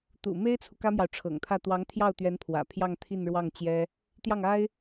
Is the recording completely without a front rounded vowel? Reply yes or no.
yes